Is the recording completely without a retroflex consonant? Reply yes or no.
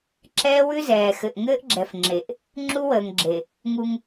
yes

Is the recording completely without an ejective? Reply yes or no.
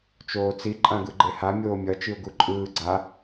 no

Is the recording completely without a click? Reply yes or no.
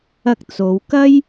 yes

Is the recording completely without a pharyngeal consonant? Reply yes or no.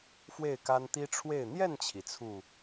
yes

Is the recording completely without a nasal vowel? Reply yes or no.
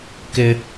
yes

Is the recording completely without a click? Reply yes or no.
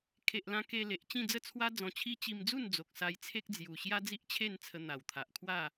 yes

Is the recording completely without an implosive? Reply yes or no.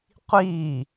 yes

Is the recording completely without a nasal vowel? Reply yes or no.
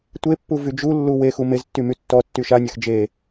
yes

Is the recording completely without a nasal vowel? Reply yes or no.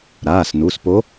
yes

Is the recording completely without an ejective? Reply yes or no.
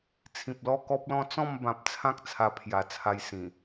yes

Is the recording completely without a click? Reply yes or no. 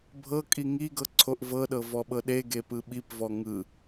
no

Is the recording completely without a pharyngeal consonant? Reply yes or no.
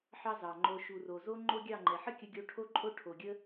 no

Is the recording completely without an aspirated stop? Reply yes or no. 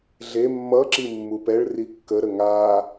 yes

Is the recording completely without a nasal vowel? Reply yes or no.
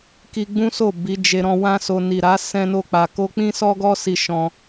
no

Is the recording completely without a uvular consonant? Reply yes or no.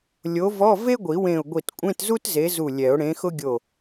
yes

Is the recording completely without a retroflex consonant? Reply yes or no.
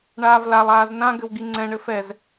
no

